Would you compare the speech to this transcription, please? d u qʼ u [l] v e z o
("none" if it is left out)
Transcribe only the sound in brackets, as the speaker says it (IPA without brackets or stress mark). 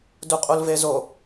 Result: l